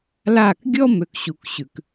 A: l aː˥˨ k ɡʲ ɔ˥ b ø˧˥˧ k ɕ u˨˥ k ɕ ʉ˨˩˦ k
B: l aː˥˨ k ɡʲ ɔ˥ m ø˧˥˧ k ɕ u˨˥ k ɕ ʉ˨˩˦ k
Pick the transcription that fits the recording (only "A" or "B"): B